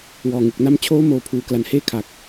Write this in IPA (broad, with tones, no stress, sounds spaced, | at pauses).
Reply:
w ɔː˨˩ ŋ ɯ˨˩ k̚ n a˥˩ m t͡ɕʰ oː˦˥ m oː˨˩ pʰ uː˩˦ k l a˨˩ n h eː˥˩ kʰ a˨˩ k̚